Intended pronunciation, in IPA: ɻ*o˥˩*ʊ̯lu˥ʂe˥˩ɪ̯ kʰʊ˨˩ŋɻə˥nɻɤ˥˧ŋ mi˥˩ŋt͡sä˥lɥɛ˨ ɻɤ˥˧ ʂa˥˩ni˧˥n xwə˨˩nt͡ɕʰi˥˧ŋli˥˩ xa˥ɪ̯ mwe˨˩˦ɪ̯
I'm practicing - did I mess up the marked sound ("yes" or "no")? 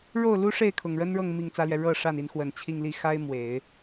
no